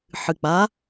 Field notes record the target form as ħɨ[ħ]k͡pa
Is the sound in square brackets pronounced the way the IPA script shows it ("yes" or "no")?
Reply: no